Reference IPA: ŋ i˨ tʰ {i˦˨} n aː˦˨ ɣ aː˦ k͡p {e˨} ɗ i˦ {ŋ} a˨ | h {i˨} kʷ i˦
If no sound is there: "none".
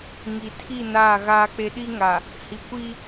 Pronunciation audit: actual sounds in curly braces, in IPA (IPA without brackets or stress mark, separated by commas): i˦˨, e˦, ŋ, i˨